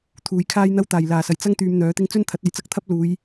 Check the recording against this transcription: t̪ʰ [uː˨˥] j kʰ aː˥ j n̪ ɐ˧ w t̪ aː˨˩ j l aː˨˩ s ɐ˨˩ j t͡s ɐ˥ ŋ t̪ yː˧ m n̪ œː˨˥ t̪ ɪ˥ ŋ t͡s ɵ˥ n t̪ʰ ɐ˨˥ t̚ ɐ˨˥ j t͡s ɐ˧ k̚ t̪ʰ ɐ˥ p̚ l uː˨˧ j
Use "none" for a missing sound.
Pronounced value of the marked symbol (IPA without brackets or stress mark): uː˨